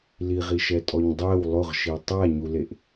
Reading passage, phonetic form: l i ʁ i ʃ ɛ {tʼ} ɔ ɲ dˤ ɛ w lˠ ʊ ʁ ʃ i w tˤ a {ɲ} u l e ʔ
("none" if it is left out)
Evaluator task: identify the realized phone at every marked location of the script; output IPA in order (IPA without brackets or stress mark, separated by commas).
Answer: tʼ, ɲ